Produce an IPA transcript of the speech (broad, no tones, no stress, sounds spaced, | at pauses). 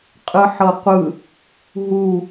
qʼ ɯ ħ ɤ qʷ ɯ | ɦ u